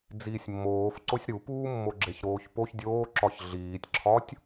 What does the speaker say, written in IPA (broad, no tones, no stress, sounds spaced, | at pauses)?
d͡z iː sʲ mː oː f ǀ o sʲ ɾ u p uː mː o ɡ͡ǁ e ç ɾ oː ç p o ç dʲ oː ǁ ɒ ç ɮ iː tʲ ǁʰ ɒ tʲ